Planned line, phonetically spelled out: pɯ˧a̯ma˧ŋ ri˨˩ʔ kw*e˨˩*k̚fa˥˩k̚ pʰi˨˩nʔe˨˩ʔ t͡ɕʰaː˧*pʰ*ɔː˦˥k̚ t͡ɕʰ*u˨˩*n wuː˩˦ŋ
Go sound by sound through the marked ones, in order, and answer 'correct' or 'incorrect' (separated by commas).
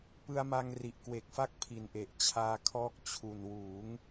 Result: correct, incorrect, correct